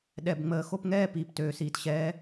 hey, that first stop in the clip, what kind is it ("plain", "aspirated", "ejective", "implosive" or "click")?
implosive